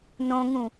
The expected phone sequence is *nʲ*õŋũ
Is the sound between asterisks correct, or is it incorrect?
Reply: incorrect